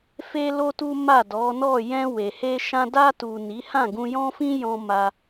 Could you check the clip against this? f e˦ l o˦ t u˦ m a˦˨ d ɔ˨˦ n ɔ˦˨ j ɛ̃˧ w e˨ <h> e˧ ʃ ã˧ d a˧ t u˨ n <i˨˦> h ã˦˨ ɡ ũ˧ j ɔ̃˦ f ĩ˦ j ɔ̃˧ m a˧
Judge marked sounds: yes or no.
yes, yes

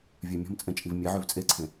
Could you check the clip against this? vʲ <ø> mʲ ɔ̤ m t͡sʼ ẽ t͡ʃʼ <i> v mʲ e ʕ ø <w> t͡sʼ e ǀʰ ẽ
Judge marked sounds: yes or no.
yes, yes, no

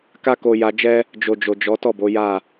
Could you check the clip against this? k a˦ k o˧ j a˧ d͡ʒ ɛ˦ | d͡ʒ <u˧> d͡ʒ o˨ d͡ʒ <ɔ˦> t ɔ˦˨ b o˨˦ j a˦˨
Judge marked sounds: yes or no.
no, no

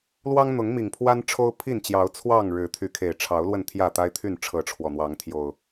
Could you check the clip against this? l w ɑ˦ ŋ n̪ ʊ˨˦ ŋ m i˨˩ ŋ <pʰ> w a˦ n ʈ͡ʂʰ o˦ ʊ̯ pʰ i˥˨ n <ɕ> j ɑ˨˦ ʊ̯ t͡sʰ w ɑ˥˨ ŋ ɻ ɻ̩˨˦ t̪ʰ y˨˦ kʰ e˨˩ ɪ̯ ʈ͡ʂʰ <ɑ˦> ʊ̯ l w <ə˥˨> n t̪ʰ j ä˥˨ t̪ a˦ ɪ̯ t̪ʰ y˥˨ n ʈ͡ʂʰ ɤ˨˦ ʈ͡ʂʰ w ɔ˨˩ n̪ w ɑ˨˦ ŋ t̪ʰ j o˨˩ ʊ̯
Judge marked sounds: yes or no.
yes, no, no, yes

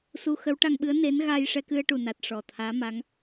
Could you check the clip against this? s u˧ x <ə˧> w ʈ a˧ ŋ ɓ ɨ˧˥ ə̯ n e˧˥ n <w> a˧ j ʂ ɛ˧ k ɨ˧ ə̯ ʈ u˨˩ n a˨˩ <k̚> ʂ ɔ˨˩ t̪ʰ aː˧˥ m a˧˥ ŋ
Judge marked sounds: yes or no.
no, no, no

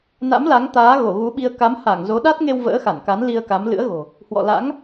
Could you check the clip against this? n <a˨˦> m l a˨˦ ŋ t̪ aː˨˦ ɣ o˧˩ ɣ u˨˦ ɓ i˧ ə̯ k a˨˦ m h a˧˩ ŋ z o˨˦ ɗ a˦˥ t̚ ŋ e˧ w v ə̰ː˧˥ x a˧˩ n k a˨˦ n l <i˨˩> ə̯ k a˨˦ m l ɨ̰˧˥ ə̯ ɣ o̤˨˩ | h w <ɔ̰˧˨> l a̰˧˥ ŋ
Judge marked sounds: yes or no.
no, no, yes

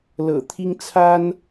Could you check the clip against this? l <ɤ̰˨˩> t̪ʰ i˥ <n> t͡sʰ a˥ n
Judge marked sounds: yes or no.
yes, no

